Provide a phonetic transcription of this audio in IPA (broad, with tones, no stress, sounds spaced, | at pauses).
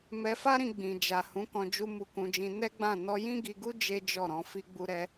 m ɛ˧ f a˦ ɾ ĩ˧ ɡ͡b ĩ˨ d͡ʒ a˨ h ũ˨˦ k ɔ̃˧ d͡ʒ u˧ m u˧ k ũ˧ d͡ʒ ĩ˧ n ɛ˦ ɡ͡b ã˦˨ n ɔ˧ j ĩ˦ ɡ i˧ ɡ u˦ d͡ʒ e˦ d͡ʒ ɔ˦˨ ɾ ɔ̃˧ f i˧ ɡ͡b u˧ ɾ ɛ˧